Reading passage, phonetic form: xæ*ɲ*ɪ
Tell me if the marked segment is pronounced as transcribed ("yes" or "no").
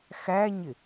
yes